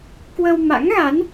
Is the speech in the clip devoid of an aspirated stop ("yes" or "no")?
yes